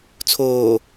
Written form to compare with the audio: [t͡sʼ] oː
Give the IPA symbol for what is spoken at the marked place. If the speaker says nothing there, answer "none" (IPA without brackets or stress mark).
t͡sʰ